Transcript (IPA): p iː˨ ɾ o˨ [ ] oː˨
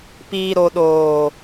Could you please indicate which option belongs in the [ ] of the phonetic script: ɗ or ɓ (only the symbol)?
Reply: ɗ